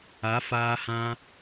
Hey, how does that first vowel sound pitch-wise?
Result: rising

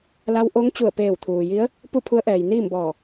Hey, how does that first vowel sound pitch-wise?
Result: rising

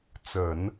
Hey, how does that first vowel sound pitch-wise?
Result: low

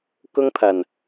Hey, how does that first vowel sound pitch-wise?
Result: high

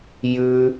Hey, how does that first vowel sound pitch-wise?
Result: high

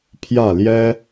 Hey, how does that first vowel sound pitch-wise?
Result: falling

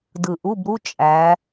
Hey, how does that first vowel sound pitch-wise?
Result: low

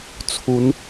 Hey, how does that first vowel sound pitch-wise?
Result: rising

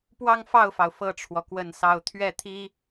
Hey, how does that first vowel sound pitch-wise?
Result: falling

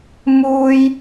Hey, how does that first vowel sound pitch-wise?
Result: high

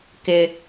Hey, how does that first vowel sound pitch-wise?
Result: high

